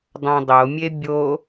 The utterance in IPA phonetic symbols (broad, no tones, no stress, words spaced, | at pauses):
dˤãdˤomʲe bʲo